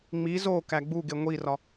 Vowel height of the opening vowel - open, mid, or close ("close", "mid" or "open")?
close